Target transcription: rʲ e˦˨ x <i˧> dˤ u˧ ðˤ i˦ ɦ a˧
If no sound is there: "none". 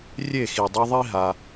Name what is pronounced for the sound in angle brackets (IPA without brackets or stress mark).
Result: i˨